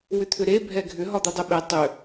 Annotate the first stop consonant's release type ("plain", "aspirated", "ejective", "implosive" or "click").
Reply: aspirated